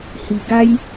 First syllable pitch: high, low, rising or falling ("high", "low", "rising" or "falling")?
low